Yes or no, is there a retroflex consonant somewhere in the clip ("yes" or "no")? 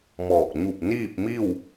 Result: no